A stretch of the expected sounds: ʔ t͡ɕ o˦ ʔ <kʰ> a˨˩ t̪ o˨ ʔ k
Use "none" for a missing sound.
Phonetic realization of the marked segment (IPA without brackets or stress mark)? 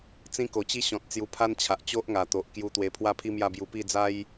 ŋ